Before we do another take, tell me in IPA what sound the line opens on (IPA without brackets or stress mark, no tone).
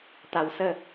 t̪